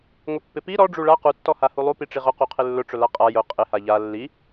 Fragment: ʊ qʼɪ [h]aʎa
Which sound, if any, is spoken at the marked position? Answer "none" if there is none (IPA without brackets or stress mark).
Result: h